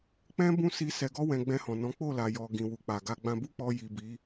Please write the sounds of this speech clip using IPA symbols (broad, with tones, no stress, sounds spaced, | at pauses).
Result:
k͡p ɛ̃˦ b ũ˦˨ s i˧ s ɛ˧ ɡ ɔ˦ w ɛ̃˧ ɡ͡b ɛ̃˧ h ɔ̃˨ n ɔ̃˨˦ k͡p o˦˨ l a˨ j ɔ˨ ɡ ĩ˨ w u˨ k͡p a˨ ɡ a˧ ɡ͡b ã˧ b u˦ k͡p ɔ˧ j i˨ b i˨˦